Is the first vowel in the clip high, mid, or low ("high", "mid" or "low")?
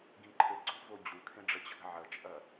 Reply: high